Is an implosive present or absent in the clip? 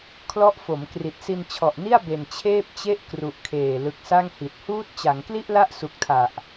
absent